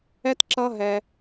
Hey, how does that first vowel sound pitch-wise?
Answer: high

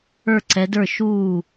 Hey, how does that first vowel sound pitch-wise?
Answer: falling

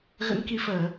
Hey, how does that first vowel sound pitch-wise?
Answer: rising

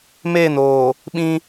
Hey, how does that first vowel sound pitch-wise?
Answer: falling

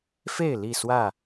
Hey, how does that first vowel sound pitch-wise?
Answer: falling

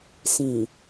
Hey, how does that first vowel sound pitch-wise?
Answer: low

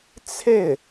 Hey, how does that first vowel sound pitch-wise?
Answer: falling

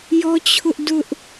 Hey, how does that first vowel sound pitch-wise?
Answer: high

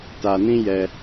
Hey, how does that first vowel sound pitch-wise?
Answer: low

